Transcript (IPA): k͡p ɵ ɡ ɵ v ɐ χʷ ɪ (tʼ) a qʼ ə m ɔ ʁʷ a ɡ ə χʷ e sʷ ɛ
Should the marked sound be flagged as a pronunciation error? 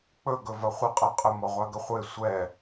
yes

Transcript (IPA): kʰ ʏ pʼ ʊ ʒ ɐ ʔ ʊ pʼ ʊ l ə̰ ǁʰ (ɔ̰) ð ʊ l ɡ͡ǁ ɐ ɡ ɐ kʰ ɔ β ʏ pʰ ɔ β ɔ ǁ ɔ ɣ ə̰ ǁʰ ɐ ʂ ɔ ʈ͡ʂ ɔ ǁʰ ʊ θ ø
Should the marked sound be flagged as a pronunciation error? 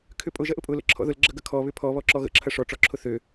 no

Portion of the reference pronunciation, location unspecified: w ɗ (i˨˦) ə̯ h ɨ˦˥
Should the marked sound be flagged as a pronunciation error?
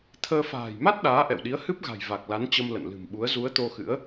no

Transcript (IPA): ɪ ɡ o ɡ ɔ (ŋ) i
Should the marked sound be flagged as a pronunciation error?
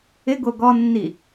yes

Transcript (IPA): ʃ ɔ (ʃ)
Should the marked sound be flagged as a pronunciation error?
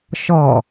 yes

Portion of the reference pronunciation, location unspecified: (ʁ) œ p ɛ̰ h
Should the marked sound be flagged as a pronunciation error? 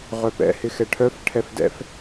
no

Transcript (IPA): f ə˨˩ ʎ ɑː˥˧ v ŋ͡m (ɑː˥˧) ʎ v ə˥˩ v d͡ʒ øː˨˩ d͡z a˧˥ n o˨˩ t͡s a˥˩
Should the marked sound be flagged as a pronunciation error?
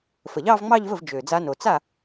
yes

